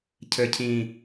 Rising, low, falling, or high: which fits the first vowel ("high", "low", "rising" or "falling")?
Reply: low